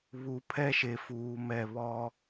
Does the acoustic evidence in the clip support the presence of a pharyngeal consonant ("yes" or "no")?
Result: no